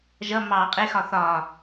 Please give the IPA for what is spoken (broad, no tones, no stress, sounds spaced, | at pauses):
ʒ ʌ m ɑ qʼ ɪ x ɒ θ ɒ